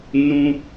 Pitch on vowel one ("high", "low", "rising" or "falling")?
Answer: high